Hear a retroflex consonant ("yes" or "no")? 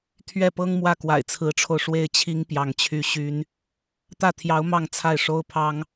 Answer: yes